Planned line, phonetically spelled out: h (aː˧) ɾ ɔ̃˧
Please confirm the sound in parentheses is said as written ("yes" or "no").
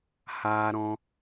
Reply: yes